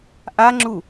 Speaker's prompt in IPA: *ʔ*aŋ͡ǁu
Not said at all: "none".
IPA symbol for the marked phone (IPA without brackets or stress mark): ʔ